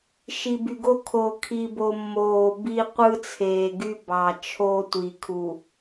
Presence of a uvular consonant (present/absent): present